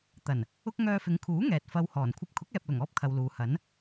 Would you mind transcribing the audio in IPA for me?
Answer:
t̪ ɐ˨˩ n | ʊ˥ k̚ ŋ œː˧ f ɪ˨˧ ŋ kʰ uː˨˥ ŋ ɛː˨ t̚ f ɐ˧ w h ɔː˨˩ n kʷʰ ɐ˧ p̚ kʰ ʊ˨˥ k̚ ɛː˨ p̚ l ʊ˨˩ ŋ ɔː˥ p̚ kʰ ɐ˨ w l uː˨ h ɐ˨˥ n

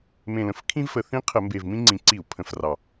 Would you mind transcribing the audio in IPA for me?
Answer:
m ẽ˨˩ l ə̃˨˩ f kʰ ĩ˦ v f ə˨˩ θ ĩ˦ qʰ ə˧˩˧ m b e˨˩ v m ĩ˦ ŋ͡ǀ ĩ˨˩ ǀ i˧˩˧ u̯ pʰ ə̃˨˩ f r ɑ˨˩

